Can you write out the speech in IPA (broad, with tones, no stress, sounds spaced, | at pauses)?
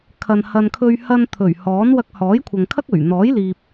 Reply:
kʰ ɐ˨ n h ɐ˨ n kʰ ɵ˧ ɥ h ɐ˧ n t̪ʰ ɵ˨˩ ɥ h ɔː˨˥ n w ɐ˧ k̚ h ɔː˨˥ j kʷʰ ɐ˨ ŋ kʰ ɐ˥ k̚ ɵ˨˩ ɥ n̪ ɔː˨˥ j l iː˨ p̚